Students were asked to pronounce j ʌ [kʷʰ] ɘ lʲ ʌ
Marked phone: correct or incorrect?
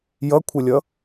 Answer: correct